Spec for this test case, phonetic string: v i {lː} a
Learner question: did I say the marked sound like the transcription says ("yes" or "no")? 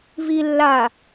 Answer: yes